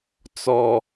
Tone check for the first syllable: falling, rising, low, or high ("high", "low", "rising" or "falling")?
low